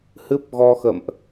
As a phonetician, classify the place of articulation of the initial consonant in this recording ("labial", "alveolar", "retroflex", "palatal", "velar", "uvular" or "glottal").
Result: glottal